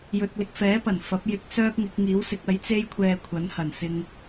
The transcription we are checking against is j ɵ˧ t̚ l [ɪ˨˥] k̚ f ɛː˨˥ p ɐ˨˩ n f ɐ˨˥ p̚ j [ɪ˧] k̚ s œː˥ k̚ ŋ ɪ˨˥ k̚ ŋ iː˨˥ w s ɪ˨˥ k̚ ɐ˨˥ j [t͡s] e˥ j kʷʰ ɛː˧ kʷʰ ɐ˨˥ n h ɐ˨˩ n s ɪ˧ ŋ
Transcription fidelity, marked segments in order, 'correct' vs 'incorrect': incorrect: ɪ˧, correct, correct

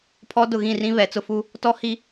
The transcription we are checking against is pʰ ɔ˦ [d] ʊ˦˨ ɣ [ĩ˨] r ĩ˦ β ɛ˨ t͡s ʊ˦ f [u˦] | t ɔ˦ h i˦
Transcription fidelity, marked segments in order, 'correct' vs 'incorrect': correct, incorrect: ĩ˦˨, correct

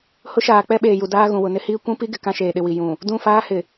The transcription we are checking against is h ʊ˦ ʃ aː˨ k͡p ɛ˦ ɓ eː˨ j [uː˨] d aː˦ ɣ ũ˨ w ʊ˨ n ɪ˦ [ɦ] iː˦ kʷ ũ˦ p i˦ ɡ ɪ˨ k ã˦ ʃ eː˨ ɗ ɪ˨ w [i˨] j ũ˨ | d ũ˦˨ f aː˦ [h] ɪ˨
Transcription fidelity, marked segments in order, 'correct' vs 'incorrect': incorrect: u˨, incorrect: h, correct, correct

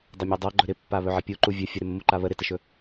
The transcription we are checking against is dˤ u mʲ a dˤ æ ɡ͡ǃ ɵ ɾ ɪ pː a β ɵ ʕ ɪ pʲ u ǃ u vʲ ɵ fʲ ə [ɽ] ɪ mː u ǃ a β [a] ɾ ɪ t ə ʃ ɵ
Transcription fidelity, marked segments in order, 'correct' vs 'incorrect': incorrect: ɾ, incorrect: ə

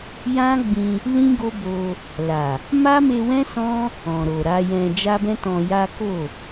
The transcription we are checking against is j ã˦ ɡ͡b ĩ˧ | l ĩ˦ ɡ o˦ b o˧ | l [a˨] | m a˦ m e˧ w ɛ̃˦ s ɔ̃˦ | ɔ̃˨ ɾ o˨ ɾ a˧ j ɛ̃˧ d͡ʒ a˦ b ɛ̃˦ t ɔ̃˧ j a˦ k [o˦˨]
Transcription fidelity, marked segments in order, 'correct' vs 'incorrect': correct, correct

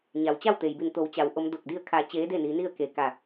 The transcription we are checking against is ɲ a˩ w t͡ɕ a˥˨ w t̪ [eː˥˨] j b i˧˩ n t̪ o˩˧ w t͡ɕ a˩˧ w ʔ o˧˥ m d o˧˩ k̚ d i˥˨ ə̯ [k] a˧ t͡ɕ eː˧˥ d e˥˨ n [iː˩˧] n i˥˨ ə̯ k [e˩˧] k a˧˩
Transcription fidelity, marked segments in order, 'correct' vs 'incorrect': incorrect: eː˩, incorrect: kʰ, incorrect: i˩˧, correct

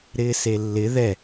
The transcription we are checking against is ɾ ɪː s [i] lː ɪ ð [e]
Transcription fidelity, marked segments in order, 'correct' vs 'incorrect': incorrect: e, incorrect: ɛ

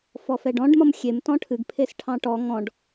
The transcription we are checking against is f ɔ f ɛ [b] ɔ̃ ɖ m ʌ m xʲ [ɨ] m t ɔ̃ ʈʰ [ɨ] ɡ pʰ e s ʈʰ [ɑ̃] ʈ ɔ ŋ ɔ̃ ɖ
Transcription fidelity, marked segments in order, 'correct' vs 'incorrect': incorrect: ɖ, incorrect: e, correct, correct

